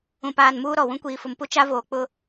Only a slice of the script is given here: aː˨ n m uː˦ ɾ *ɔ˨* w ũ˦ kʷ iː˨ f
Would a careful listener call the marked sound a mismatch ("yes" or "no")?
no